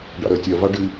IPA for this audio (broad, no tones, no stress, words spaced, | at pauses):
ɖa̰ɾɜtʲɜ vaɖɨ